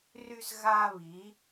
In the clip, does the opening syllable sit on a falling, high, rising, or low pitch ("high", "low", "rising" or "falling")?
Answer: high